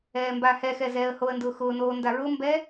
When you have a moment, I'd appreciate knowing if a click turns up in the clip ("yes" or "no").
no